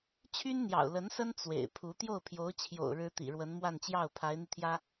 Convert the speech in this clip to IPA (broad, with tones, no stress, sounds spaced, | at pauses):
t͡ɕʰ y˥ n n̪ j ɑ̰˨˩ ʊ̯ l ə˧˥ n s ə˥ n t͡s w ḛ˨˩ ɪ̯ pʰ u˧˥ t̪ j o˥˩ ʊ̯ pʰ j o˧˥ ʊ̯ t͡ɕʰ j o̰˨˩ ʊ̯ ɻ ɻ̩˥ t̪ ḭ˨˩ ɻ w ə˧˥ n m w a˥˧ n t͡ɕ j ɑ˥˩ ʊ̯ pʰ a˧˥ ɪ̯ n̪ i˧ t̪ʰ j ä˥